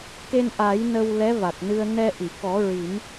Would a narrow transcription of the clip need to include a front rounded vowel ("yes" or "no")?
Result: no